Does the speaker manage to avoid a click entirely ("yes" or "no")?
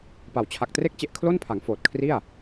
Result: yes